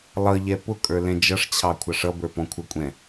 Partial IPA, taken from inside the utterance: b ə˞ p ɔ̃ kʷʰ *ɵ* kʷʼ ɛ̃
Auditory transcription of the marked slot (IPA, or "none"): ə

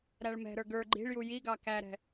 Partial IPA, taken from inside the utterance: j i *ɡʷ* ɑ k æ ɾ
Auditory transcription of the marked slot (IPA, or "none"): ɡ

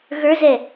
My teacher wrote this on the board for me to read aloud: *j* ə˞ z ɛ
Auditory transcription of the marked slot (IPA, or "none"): ɣ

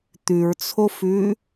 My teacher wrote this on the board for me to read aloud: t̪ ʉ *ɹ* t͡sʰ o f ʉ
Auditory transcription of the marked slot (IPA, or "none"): ɹ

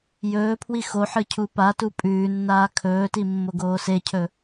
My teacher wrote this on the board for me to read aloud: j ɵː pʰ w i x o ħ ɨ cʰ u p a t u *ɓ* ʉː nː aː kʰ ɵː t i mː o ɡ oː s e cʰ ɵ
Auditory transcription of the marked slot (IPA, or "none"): pʼ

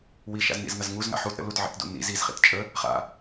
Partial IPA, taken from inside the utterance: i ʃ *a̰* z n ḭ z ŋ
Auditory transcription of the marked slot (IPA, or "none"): a̰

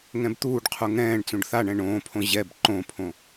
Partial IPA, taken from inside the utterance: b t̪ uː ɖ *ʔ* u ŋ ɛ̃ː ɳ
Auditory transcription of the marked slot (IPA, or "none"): qʰ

